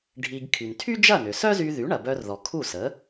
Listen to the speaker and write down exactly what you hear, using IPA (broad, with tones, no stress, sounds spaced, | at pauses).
ɖʱ i˧ ɡ kʰ y˩ n tʰ y˥ d͡ʒ ɐ˥˩ n ʏ˩ s œ˥ z y˧ ð y˩˥ ɳ ɐ˩ b œ˧ r ð ɔ˩ kʰ u˥˩ s ə˩˥